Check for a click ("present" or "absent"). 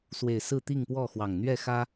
absent